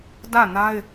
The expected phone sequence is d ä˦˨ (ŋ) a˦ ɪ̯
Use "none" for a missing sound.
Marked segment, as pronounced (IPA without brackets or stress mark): n